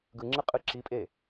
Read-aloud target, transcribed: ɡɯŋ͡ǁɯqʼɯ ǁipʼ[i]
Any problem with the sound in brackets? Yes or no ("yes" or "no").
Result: yes